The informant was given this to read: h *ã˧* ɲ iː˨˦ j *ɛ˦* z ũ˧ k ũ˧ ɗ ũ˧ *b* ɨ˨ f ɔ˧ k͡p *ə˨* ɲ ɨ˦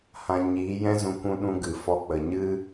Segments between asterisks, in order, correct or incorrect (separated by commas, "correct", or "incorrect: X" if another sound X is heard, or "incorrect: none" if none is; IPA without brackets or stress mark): correct, incorrect: ɛ̃˦, incorrect: ɡ, correct